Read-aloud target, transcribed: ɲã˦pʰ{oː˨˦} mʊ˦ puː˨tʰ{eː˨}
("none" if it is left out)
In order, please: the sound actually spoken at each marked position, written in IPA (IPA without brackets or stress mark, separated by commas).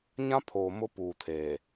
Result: oː˨, eː˨